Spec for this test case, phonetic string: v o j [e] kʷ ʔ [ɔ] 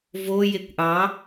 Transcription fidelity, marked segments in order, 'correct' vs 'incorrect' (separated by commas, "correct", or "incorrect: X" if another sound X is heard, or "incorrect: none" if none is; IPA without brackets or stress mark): correct, incorrect: ɑ